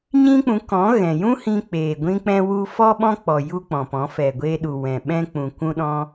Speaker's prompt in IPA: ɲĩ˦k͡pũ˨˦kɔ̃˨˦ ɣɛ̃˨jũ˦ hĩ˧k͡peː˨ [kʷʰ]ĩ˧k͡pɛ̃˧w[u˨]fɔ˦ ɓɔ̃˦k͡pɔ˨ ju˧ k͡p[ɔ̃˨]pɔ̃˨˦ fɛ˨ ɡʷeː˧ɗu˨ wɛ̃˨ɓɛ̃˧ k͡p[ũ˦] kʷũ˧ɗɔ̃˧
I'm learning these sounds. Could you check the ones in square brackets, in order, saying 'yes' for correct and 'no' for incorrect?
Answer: no, no, yes, no

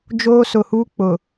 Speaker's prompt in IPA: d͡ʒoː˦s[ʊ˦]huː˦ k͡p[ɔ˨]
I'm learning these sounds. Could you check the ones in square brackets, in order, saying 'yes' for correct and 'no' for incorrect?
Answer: no, no

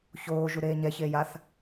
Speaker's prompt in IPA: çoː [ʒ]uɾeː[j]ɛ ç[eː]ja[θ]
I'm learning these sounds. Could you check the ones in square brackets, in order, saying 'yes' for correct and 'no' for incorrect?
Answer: yes, no, yes, yes

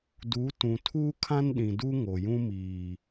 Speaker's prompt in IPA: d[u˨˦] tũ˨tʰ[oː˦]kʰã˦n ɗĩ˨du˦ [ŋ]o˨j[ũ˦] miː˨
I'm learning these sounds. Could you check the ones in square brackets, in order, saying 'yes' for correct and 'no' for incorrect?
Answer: yes, no, yes, yes

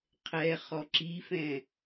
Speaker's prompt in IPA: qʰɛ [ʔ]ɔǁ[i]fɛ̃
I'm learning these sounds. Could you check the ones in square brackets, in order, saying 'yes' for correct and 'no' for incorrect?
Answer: no, yes

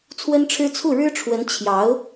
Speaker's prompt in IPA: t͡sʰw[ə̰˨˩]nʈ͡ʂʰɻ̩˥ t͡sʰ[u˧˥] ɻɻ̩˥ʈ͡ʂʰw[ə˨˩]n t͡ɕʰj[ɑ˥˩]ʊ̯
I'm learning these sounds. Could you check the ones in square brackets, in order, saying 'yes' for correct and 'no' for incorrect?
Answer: no, no, no, no

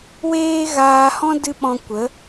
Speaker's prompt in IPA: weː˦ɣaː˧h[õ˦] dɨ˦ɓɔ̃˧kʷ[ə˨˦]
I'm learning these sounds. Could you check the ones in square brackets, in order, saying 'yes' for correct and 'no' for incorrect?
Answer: no, yes

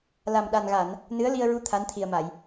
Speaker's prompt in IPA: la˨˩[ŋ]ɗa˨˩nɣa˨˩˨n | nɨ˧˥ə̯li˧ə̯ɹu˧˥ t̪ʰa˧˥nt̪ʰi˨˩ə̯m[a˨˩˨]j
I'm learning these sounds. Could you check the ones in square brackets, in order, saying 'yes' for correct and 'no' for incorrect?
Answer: no, yes

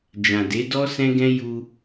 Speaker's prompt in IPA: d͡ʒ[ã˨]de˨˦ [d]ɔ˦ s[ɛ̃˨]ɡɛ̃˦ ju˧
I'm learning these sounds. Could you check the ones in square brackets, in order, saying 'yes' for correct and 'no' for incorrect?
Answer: yes, yes, no

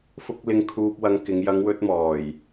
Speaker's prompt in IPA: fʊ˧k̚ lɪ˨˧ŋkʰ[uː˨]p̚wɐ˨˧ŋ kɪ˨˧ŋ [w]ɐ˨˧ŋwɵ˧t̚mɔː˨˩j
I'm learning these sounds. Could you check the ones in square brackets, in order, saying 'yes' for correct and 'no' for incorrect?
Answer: yes, no

